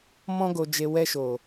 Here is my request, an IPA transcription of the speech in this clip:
m ɔ̃˦ ɡ o˧ d͡ʒ e˧ w ɛ˧ ʃ o˨

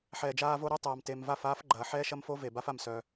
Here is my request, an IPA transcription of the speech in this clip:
ħ ɛː˨ d͡ʒ aː˧ v o˧ ɾ œ˦ tˤ aː˧ m t e˧ m v a˦˨ f aː˦ f ɡ͡ǃ ɐː˨ ħ ɛː˦ ʃ ɐ˦ m f o˦ v e˨ b a˦ f a˧ m s œ˧

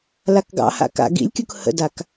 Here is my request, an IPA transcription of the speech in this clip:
l a k ɡ ɑ̰ h a̰ k a̰ ɡ ḭ lʲ kʲ u k h ə̰ d a k

